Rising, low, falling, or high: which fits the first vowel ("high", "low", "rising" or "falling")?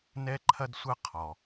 high